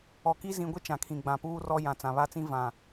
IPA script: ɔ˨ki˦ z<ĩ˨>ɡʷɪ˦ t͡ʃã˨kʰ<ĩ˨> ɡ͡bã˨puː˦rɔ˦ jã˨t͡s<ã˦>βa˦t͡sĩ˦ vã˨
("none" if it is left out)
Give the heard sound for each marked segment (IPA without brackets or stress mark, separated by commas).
ĩ˨, ĩ˨, ã˨